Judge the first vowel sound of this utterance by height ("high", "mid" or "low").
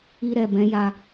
high